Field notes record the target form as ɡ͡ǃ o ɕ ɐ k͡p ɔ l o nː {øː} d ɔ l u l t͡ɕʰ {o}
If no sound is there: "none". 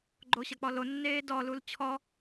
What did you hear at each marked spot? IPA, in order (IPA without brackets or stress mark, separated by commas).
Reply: eː, ɔ